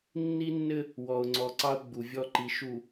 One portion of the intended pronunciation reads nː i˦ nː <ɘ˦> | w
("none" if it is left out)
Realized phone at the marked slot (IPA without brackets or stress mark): ɘ˦